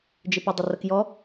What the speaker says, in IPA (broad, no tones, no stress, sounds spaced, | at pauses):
d͡ʒ ɪ p ʊ dˤ ɪ r ə k j ɔ